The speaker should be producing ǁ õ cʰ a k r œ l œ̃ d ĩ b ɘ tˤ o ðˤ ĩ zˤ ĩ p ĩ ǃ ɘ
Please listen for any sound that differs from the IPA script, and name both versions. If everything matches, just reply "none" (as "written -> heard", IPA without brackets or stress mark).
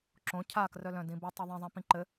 none